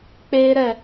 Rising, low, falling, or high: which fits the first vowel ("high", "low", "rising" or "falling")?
high